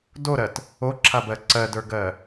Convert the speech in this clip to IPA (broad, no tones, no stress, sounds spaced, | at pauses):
d o ɾ ɜ t | o ǁʰ a b ɜ ǀ ɜ d ə˞ ɡ ɜ